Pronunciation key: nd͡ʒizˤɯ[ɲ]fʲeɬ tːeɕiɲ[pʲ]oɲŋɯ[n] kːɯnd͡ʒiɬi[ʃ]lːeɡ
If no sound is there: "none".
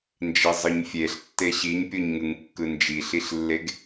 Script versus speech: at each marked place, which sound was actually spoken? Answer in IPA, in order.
ɲ, pʲ, ŋ, ɬ

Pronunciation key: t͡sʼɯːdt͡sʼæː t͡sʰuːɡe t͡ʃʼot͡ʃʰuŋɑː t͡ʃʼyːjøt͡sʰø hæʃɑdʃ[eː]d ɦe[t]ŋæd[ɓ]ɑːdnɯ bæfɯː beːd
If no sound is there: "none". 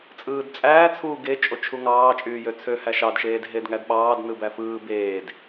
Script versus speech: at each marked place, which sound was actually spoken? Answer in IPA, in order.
eː, d, ɓ

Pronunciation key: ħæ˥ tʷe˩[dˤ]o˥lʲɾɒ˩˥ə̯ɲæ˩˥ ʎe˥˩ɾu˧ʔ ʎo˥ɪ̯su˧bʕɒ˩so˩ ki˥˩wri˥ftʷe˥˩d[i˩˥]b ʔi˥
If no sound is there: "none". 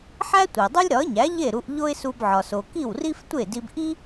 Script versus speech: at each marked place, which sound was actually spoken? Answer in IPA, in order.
dˤ, i˧

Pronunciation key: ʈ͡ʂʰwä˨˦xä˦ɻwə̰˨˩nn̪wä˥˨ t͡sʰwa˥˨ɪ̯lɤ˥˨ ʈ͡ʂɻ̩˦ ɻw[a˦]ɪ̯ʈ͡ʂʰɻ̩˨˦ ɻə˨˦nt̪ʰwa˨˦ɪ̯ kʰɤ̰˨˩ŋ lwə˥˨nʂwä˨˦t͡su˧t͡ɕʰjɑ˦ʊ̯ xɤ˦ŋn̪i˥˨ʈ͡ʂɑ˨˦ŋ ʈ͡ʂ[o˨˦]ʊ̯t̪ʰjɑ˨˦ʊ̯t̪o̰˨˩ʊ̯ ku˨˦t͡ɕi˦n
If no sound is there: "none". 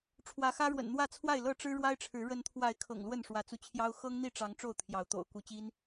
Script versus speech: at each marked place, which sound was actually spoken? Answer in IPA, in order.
a˦, o˥˨

